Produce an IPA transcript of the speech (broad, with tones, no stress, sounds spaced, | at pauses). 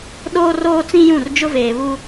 ɗ oː˦ r oː˦ t͡s ĩ˦ j ũ˦˨ r d͡ʒ ʊ˦ v eː˨ β u˦